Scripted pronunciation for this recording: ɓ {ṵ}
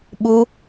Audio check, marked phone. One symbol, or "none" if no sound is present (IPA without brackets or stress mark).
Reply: u